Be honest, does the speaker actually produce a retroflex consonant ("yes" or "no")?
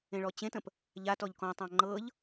yes